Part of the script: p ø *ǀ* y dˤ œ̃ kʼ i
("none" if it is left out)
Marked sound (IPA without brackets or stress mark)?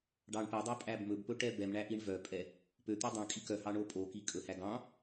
t̪